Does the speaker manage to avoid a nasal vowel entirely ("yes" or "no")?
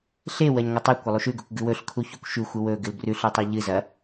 yes